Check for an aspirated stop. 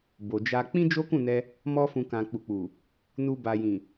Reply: absent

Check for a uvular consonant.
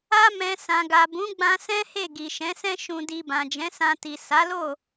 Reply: absent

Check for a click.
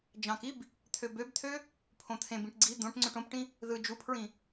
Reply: present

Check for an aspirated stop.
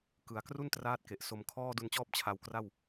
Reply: present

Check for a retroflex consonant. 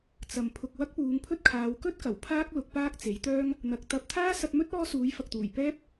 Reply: absent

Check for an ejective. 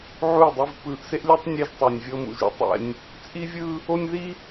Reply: present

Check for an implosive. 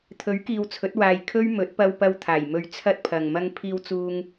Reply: absent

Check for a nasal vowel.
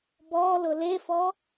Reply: absent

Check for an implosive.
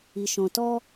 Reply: absent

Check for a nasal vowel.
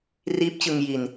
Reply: absent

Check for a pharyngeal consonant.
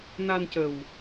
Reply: absent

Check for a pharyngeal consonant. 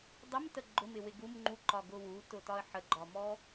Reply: present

